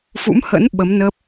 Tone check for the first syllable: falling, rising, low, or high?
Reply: rising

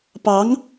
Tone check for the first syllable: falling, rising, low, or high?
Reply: rising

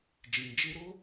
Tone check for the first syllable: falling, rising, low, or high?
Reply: low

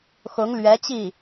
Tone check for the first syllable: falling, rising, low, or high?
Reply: rising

